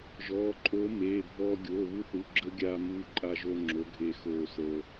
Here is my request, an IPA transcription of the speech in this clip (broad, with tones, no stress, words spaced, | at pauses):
ʒɔː˩˧˩ǃʼoː˨˥ meː˩˧˩bʱɔː˧ ɡʲoː˩˧˩βu˧θu˩˧˩ɡ͡ǁəː˧ ɡʲaː˧muː˧ǃʼa˧ʒo˧ ŋ͡ǁo˨˥ɡʱeː˧ xoː˧səː˧